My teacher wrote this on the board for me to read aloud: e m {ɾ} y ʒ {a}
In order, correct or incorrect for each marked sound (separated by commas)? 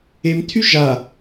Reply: incorrect, correct